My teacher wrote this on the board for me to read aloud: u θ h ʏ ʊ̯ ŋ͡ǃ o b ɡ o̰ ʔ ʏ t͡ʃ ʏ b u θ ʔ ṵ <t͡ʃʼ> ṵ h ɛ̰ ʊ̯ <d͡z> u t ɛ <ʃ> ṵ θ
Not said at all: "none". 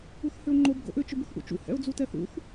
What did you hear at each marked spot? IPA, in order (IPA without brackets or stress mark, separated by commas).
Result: t͡ʃ, d͡z, θ